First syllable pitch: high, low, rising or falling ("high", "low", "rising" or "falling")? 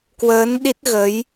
rising